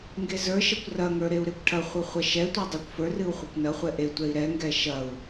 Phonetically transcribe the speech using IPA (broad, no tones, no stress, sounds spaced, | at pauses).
ŋ ɡ e z ə˞ ʃ ɐ kʷ r ɐ ŋ ə˞ ɾ e u̯ ɾ e kʷ ʈʰ ɐ χʷ ɨ χʷ ɐ ʃ ɛ tʷ ɛ dˤ ɛ kʷ f ə˞ r ɨ u̯ χʷ ɐ kʷ n ɐ χʷ ɛ ʔ e tʷ ɛ i̯ ɾ ɛ ŋ ɡ ɛ ʃ ɐ u̯